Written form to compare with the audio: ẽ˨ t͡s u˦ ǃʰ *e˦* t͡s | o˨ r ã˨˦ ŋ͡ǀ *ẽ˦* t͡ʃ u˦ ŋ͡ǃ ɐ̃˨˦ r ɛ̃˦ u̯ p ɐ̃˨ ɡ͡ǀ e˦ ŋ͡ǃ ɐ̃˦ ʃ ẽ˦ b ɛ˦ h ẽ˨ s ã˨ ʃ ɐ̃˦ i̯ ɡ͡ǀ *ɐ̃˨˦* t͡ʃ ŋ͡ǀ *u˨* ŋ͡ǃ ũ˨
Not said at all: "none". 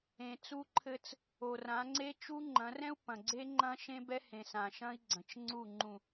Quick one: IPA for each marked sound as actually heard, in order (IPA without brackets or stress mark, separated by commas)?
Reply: ɘ˦, e˦, ɐ̃˨, u˦˨